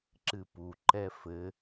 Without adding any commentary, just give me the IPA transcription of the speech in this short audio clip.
ǁɨpu ǃɛfɘ

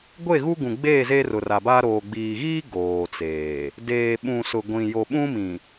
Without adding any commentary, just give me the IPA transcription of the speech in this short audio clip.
ɡʷe˦˨ɣu˦ɡũ˨ɡ͡beː˦˨ ze˦rʊ˨ra˨ba˦ ɾoː˨ɡ͡biː˨ɣiː˦ ɡoː˨t͡seː˨ | deː˨ɓũ˨ sʊ˨ɡʷĩ˨ jo˨ɓũ˦mĩ˨

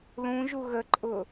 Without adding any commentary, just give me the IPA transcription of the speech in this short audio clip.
lũʒu ɣəǃʼʊ

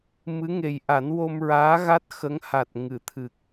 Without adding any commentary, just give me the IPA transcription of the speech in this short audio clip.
mɨ˧˥ŋe˨˩j ʔa˨˩˦nwo˧mɹaː˧˥ɣa˦˥t̚ xə˧˥ŋha˨˩t̚ ŋɨ˨˩˨t̪ʰɨ˨˩k̚

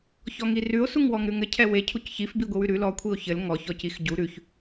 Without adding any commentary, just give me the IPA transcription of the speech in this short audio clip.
çɔŋirʉo̯ suŋwɔŋɾʉŋɘ cʰɛwe cʰucçif biɡʷiwʉɾʉ lɔ kʷʰio̯çɘl ŋɔ çɔcixɟu ɾʉç

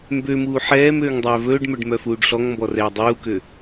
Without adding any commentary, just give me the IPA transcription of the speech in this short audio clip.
mbømuː ħɛːm øːŋdˤœːvɵːɖmœɖ mœfuːɖɬɔŋmbɔ rɛːdˤuːkø

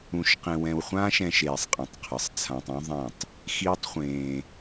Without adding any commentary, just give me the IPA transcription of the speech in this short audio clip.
ũ˧ʃqẽ˧wɛ̃˧wχʷãː˦ʃ ɛ̃˦ʃ eː˧sˤqʼĩ˧tˤ qʰɯ˧sˤt͡sʰã˦tˤ ũ˦ðˤɛ̃˦˨tˤ | xiː˦tˤχʷẽː˧

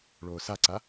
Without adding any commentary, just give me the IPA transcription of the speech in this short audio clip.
ɭoːsaǀa

